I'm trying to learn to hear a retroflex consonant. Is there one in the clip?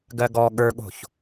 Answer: no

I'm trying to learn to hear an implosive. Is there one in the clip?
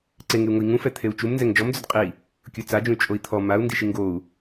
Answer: no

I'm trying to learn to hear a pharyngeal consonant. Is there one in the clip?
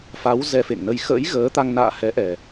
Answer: no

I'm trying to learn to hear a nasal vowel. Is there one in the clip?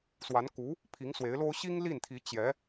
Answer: no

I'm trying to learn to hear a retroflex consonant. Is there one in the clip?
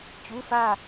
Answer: no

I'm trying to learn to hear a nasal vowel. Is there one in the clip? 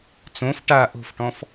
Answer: yes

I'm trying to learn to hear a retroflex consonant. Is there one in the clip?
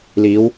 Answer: no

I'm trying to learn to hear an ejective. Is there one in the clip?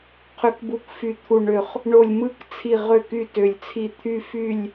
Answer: no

